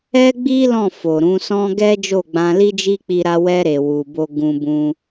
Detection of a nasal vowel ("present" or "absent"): present